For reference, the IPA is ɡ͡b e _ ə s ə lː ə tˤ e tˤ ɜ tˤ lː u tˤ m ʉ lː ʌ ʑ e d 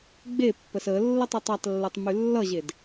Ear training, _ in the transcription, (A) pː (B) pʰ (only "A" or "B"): A